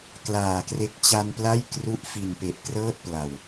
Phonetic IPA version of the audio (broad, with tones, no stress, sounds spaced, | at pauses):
k l aː˨˩ k r e˦˥ k̚ t͡ɕ a˧ n p l a˥˩ j k r u˦˥ ʔ f i˨˩ n p e˨˩ ʔ k r ɤː˥˩ t̚ p l a˨˩ w